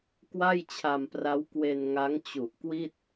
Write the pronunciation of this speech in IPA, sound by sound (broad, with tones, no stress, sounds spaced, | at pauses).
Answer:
k w a˥˩ j t͡ɕʰ a˧ m p r a˦˥ w k w e˧ n ŋ a˦˥ ŋ t͡ɕ u˨˩ ʔ k w i˥˩ t̚